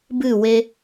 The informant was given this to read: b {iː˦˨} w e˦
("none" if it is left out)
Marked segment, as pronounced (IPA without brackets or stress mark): ɨː˦˨